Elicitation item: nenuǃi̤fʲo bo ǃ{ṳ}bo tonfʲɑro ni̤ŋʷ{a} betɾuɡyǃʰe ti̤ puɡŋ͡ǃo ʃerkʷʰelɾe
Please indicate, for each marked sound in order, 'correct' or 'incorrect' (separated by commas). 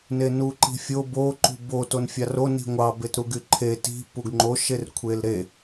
correct, incorrect